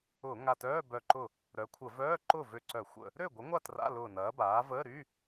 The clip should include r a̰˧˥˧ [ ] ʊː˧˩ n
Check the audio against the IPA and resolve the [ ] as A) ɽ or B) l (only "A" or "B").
B